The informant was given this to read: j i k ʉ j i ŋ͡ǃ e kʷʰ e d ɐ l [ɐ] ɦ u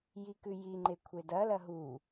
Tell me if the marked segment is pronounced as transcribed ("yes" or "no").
yes